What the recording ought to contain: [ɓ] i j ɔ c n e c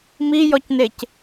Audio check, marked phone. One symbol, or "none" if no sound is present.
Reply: m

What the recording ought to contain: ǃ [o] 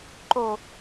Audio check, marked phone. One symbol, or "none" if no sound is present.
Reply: o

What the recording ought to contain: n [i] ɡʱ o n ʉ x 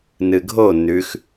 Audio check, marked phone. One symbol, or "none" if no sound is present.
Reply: ɨ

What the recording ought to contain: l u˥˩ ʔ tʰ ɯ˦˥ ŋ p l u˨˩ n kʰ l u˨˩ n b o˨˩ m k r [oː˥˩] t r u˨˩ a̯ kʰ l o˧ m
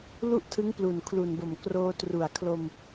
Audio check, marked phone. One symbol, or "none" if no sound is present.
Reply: oː˧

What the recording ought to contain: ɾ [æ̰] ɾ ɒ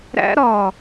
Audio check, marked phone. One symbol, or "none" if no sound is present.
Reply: æ̰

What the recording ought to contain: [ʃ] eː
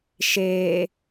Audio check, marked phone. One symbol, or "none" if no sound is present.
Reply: ʃ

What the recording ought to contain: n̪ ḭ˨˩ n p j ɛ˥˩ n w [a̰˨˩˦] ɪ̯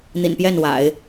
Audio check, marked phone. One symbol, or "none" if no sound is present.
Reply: a̰˨˩˦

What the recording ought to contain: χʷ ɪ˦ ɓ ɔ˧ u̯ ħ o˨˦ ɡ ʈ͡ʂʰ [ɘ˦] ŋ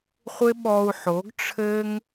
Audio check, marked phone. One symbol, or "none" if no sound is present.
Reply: ɘ˦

